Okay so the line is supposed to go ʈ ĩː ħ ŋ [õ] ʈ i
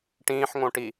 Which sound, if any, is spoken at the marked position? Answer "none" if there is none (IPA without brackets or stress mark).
õ